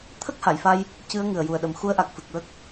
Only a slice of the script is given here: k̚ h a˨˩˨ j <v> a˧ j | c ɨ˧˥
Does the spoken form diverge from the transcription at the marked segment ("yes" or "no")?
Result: yes